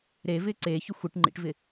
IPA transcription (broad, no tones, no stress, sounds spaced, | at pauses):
ɾ e v ɪː ǀ eː ç ʏ xʷ e ʈ ŋ͡ǃ ḭ ʈ v ɪ